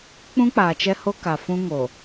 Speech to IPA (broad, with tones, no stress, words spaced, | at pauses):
k͡pũ˦k͡paː˨t͡ʃɛ˦ho˦ ka˨fũ˦ ŋo˨